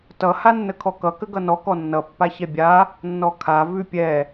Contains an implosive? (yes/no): no